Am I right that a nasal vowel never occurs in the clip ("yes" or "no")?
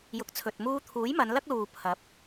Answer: yes